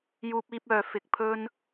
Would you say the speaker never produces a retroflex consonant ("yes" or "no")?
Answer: yes